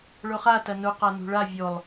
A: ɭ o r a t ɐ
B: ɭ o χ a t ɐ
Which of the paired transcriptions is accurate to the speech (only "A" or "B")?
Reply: B